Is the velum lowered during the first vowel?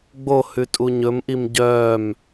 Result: no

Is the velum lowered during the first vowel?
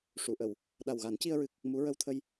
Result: no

